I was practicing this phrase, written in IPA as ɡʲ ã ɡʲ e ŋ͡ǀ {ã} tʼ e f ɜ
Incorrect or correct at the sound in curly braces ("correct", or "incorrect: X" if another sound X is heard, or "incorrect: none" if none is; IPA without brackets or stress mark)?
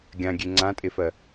correct